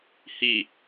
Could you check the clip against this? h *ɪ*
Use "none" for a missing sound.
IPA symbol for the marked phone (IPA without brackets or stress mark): i